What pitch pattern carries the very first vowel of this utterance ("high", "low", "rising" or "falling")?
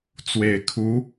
low